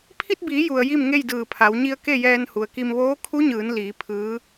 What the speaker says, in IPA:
pʰ i˧ t̚ b iː˩˧ j u˩ ə̯ j i˥˨ m ŋ e˥˨ j d ɯː˧˩ pʰ a˩˧ w ɲ i˧ ə̯ k e˥˨ j ɛː˧ n h u˩ ə̯ k i˧ m ʋ oː˧˥ kʰ u˧˥ ɲ ɯː˩˧ n l iː˩˧ pʰ ɯː˧˥

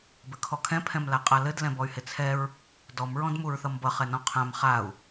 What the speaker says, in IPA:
b ɘ kʰ ɔ kʰ ɛ̃ pʰ ɛ̃ m l a qʼ a l ɘ d l ɛ̃ b ɔ y̯ h ɪ t͡sʰ ɛ ɹ | d ɔ m ɹ ɔ̃ d m u ɹ θ ʌ m b ʌ χ ɛ n ɔ̃ qʰ ã m χ a u̯

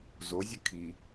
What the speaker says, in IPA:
z o zʲ ɘ kʰ i

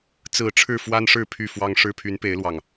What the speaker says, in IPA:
t͡s ɹ̩˨˩ ʈ͡ʂʰ ɻ̩˥˨ f w a˦ n ʂ ɻ̩˥˨ pʰ y˥˨ f w ɑ˦ ŋ ʂ ɻ̩˦ pʰ y˨˦ n p e˨˦ ɪ̯ l w ɑ˨˩ ŋ

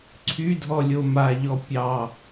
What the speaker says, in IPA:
ǀʰ y dʱ ɔ lʲ o m a ʎ ɔ pʲ ɑ

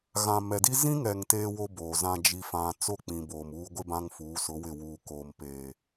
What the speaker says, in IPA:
ɣ ã˨ m ɛ˨ d i˦ z ĩ˦ ŋ ɛ˨ ŋ t eː˦ w o˦ b oː˨ z ã˦ d͡ʒ i˦ f ã˦ t͡s o˦˨ k͡p ĩ˨ b oː˨ m uː˦ ɡʷ ɪ˦ b ã˦ ŋ f uː˨˦ s ʊ˨˦ w ɪ˦˨ w uː˨ k oː˨ m p eː˨

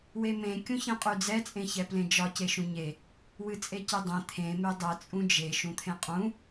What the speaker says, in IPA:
w e m ẽ kʲ ũ ç ẽ qʼ y d͡z ɛ t͡sʼ ẽ ç ɛ p l ẽ d͡ʒ ɒ c e ʃ ũ ɲ e | w ɨ t͡sʼ e c e dˤ ẽ t̪ʰ ẽ m e dˤ ɛ t͡sʼ ũ d͡ʒ e ʃ ũ t̪ʰ ẽ qʼ ũ

